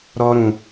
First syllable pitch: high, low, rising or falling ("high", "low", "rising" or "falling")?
high